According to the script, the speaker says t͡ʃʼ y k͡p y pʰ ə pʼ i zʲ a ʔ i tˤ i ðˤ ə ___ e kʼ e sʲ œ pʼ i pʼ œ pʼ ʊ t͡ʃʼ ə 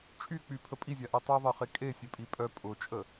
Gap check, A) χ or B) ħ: A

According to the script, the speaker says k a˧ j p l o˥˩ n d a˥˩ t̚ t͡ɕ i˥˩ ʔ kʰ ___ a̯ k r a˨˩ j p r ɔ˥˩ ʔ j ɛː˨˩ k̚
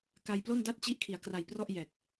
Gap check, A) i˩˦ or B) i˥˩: A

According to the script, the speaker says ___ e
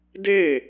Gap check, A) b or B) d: B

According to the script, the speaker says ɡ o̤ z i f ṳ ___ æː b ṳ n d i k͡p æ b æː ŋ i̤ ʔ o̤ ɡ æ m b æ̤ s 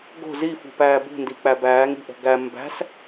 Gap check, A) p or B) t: A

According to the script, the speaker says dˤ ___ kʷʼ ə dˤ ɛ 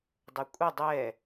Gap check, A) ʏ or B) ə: A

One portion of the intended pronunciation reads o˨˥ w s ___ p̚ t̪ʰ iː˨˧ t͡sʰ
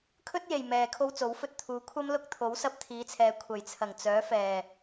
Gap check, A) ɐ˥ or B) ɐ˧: B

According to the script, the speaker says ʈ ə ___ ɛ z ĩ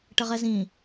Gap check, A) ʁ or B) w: A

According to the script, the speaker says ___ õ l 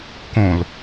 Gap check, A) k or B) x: A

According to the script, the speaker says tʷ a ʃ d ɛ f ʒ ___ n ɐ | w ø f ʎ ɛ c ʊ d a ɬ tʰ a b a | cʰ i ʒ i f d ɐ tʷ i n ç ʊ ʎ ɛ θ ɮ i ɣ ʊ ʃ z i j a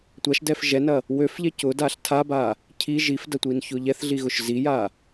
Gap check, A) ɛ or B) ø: A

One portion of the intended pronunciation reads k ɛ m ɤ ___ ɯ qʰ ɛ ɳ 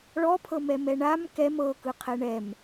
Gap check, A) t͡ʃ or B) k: B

